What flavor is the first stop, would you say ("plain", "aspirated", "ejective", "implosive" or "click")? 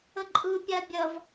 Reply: click